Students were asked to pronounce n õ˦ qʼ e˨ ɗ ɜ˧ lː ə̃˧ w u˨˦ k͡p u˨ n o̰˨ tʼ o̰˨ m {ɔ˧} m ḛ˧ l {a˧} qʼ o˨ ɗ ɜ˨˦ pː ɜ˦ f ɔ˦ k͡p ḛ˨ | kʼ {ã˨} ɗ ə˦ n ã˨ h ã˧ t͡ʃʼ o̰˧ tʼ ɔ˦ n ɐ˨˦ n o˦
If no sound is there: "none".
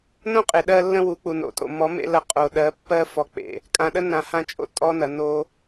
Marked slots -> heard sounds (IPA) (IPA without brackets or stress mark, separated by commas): ɔ˨˦, ɐ˧, ã˨